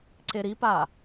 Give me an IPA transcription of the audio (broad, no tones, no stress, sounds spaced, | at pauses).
ǀ e ɾ i p aː